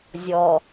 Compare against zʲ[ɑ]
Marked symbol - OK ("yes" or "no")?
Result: no